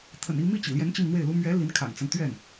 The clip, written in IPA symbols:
t̪ʰə̰˨˩ni˥˧ mi˥˩t͡ɕḭ˨˩ljɛ˧˥n t͡ɕi˥˧ŋn̪we˥˩ɪ̯lu˥ mɥɛ˧˥ li˧˥nkʰa̰˨˩nt͡sa˦n t̪ɥɛ˥˩n

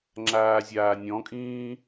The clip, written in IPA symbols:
ŋ͡ǁaːzʲaːnʲɔ̃kʼĩː

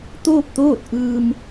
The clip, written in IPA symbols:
t̪oː˥˨p̚t̪oː˥˨t̚ ʔɯː˧m

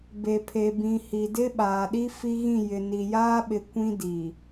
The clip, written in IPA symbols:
be˨pʰe˨bĩ˨ hi˨dɪ˦ ɓaː˨ɗi˦ fi˦ɣĩ˦˨jɪ˨ ni˨jaː˦ɓɪ˨ kʷĩ˦di˨

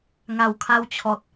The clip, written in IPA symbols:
ŋa˨˩wkʰa˧wt͡ɕʰɔ˨t̚

